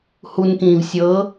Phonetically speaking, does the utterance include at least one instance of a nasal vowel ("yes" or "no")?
yes